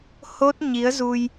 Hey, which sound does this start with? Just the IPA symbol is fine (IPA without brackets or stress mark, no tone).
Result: h